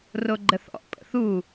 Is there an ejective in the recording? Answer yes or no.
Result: yes